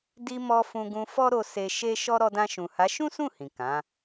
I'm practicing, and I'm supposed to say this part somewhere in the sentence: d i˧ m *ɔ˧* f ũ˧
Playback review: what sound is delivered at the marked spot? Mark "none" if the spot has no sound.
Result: ɔ˧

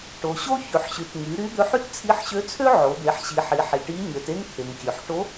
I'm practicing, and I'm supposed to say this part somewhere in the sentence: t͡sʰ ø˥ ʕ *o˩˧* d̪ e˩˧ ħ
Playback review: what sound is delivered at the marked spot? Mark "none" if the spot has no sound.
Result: o˩˧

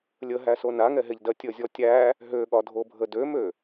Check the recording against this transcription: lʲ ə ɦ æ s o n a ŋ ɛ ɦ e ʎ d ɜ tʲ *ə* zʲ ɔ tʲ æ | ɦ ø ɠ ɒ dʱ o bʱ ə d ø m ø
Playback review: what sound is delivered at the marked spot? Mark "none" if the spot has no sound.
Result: ə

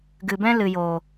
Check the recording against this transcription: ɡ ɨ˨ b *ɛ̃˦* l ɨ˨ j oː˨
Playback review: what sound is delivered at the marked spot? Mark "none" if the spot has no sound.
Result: ɛ̃˦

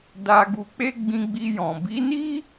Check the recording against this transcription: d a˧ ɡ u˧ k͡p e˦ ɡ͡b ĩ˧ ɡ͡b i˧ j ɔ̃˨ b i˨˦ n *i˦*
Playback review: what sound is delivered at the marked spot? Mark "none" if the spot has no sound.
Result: i˦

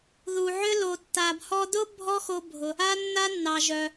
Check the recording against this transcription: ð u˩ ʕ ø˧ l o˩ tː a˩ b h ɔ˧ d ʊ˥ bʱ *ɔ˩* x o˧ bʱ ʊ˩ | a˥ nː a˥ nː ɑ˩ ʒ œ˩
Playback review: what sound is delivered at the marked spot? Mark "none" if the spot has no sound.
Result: ɔ˥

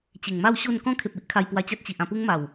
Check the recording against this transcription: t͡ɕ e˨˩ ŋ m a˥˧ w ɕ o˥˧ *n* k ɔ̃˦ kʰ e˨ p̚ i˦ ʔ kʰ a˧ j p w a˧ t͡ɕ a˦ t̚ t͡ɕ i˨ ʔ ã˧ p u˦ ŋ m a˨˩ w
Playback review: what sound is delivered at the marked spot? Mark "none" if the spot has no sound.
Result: n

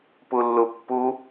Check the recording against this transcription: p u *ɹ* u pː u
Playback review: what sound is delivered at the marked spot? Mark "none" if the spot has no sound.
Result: lː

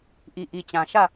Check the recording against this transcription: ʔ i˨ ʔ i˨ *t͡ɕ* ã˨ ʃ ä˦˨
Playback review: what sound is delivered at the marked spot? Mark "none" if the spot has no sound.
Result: t͡ɕ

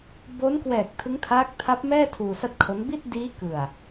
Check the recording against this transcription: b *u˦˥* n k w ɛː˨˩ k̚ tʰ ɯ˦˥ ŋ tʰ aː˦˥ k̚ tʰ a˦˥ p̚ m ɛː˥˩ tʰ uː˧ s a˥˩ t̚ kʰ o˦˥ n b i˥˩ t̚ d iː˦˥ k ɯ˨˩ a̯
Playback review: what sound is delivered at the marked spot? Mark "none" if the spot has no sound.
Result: o˦˥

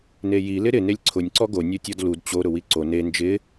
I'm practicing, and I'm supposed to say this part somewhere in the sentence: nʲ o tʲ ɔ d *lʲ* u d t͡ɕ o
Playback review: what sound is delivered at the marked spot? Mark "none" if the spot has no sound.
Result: l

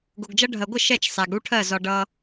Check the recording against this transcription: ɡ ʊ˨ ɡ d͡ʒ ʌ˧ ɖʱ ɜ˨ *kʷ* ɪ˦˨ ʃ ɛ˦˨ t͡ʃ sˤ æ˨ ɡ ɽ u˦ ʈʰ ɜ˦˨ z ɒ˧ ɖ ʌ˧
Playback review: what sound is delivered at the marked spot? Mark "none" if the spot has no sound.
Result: ɡʷ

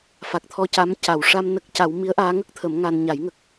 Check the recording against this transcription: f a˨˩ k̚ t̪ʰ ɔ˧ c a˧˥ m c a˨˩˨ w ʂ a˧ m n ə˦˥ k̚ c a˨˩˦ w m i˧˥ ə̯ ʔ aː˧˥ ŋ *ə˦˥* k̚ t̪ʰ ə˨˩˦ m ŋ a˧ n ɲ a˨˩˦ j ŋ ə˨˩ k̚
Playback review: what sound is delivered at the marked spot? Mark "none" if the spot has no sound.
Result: ə˦˥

